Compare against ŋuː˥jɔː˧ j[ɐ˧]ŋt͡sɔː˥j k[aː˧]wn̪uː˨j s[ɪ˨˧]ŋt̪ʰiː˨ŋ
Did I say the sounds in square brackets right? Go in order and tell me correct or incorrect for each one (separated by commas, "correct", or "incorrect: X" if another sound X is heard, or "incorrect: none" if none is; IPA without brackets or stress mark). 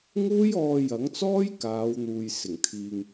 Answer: incorrect: ɐ˨˥, incorrect: aː˨˧, incorrect: ɪ˨˩